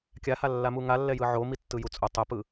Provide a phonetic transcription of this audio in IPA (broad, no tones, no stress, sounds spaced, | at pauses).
kʲ a h a lː a m u ŋ a lː ɛ j ɯ ʕ o m i tː ɯ j u t͡sʼ o tˤ ɛ p ɯ